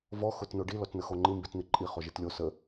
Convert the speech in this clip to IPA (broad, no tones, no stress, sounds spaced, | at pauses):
v ɔ x ʊ t n o ɖ i l ɔ t n ə x o ŋ͡ǃ i m b i t n̪ i ǃʼ i χ o ʒ i t lʲ o s ə